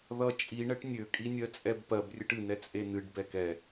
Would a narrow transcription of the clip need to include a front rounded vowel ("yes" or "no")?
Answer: yes